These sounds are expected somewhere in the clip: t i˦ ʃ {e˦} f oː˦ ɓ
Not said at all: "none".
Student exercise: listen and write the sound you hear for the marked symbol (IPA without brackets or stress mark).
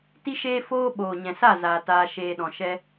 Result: eː˦